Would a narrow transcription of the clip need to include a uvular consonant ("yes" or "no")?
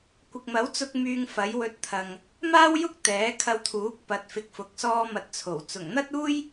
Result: no